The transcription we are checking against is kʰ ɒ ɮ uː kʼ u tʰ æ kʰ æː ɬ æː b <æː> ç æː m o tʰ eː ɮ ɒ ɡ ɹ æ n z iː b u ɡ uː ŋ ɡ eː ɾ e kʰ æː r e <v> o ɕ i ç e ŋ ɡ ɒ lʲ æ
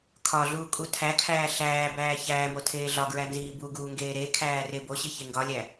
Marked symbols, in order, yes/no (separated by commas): yes, no